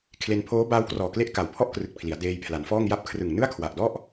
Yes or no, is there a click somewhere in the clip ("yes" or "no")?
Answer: no